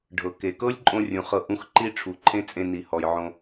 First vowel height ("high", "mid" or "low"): mid